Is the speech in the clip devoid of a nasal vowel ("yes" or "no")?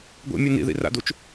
yes